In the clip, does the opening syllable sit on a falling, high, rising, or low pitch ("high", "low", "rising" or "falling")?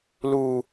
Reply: low